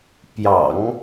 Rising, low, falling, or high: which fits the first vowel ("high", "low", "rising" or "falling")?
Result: low